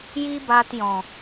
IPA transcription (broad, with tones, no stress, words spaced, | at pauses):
ji˦baː˧tjɔ̃˨